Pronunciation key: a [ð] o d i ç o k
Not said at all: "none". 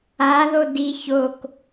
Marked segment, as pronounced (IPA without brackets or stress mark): ð